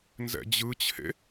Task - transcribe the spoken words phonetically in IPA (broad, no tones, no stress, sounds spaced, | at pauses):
n z ɛ̰ d͡ʑ ɯ t͡ɕʰ ḛ